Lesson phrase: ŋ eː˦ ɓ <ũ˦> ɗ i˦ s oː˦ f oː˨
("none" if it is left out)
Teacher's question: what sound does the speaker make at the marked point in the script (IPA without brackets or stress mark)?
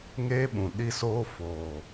ũ˨